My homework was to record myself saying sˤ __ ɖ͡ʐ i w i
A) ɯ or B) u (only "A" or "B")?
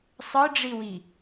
A